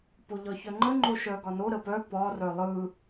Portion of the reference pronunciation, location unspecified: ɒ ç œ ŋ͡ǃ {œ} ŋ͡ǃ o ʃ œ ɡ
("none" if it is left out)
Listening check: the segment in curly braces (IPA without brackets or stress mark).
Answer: ə